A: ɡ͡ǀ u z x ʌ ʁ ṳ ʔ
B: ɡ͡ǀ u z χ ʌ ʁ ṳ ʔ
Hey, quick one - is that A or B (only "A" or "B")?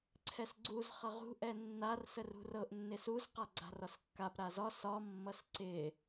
B